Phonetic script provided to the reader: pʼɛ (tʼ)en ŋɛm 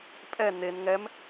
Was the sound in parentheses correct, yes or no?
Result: no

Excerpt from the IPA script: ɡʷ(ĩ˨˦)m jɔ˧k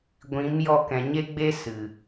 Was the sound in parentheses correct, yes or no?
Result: yes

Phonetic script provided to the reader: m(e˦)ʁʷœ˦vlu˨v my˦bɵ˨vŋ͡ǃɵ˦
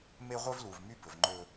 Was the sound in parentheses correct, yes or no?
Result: yes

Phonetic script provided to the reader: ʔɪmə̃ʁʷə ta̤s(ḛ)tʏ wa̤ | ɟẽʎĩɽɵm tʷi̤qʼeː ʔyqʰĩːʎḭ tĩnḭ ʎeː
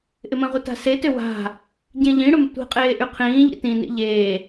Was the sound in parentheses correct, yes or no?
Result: no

